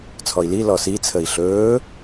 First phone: t͡sʰ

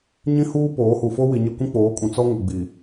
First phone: ɲ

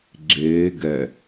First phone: ɡ͡ǁ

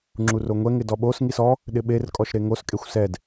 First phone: ŋ͡ǁ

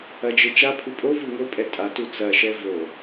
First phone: ɐ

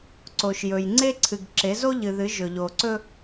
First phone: ǀ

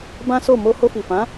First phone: b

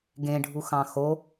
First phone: ɡ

